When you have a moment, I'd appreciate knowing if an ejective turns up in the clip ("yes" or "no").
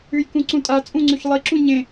yes